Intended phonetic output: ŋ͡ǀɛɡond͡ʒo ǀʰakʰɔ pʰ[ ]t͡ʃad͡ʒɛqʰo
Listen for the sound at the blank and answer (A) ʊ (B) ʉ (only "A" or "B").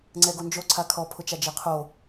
A